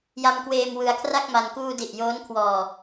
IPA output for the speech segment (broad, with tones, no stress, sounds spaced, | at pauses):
j a˧ m k w eː˧ m w ɯ˧ a̯ kʰ r a˥˩ k̚ m a˧ n k uː˧ d i˨˩ ʔ j oː˦˥ n kʰ w ɔː˧